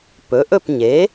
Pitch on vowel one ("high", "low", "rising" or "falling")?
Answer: rising